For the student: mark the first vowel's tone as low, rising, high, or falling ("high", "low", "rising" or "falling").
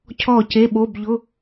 falling